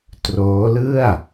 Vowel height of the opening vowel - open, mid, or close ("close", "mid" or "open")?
mid